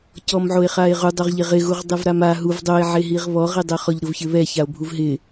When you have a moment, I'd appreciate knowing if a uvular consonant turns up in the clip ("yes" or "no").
yes